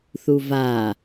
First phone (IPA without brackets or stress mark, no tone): θ